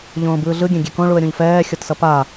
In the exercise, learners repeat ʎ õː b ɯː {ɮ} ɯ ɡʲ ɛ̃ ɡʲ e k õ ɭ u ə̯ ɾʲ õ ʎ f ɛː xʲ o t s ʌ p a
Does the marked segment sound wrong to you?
no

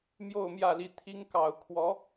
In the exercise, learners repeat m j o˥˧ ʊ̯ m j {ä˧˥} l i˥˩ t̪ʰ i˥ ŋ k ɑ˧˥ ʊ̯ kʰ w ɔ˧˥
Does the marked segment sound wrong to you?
yes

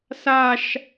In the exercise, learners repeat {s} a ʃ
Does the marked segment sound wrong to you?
no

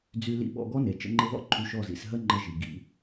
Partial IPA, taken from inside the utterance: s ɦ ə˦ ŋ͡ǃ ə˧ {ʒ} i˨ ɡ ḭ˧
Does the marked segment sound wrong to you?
no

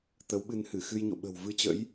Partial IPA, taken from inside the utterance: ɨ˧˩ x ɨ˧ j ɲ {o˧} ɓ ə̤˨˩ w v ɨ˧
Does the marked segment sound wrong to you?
yes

